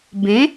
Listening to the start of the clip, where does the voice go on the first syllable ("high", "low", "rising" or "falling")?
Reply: rising